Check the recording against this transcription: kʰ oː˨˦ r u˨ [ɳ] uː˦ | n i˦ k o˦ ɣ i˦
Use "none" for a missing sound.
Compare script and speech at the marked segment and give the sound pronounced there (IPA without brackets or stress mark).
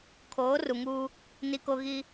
ŋ